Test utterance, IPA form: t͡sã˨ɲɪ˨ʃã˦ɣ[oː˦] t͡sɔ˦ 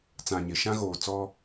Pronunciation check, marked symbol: incorrect: oː˨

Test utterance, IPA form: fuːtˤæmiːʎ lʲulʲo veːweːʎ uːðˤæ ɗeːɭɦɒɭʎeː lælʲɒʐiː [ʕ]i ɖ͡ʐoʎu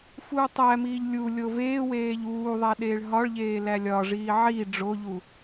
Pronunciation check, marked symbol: correct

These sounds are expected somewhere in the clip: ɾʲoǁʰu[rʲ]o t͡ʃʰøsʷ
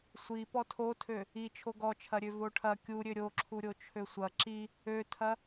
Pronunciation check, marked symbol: incorrect: ɾʲ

